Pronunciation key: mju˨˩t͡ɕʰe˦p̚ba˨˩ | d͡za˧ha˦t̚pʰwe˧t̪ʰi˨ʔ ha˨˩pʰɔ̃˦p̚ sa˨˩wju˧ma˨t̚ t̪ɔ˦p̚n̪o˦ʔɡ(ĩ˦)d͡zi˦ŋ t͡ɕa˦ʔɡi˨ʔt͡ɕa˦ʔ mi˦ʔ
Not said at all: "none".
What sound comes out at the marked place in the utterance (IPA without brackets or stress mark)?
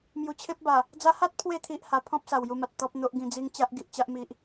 ĩ˧